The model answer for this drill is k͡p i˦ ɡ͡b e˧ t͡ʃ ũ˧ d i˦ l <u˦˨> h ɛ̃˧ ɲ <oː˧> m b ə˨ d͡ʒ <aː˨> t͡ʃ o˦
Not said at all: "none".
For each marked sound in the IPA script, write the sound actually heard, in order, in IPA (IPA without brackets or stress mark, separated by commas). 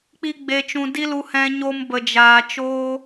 u˧, o˧, aː˨